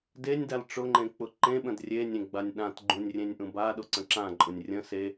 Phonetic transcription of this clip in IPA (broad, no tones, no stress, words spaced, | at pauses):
denʲdal ʈ͡ʂʊŋ͡ǃẽk͡pʊ ǃẽɓə̃d rʲenʲẽɡ͡banʲ ɗãt ɡ͡ǃũnʲrʲẽnʲʔũ baɗʊǀə̃ ǁãǃʼʊnʲ rʲə̃ se